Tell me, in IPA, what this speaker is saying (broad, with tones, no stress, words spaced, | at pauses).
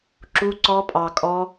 ǁu˦ǀɔ˦pʼɑ˧kʼɔ˦